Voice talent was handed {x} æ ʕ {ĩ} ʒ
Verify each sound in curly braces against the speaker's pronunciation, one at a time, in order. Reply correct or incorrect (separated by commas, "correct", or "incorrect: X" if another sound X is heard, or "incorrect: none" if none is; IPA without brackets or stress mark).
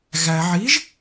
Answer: incorrect: ɣ, incorrect: i